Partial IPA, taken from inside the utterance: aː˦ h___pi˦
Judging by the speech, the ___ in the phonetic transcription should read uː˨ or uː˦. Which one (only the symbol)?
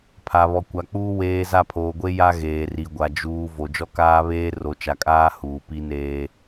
uː˨